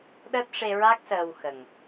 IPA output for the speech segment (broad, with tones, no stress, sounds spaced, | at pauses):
ɗ əː˦˥ t̚ ʂ e˧ ɹ a˦˥ k̚ s əː˧ w x ə˨˩ ŋ